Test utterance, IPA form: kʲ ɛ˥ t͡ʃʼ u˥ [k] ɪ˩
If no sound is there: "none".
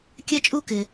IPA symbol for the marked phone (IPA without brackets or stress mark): k